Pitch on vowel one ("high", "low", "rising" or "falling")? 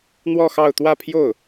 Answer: falling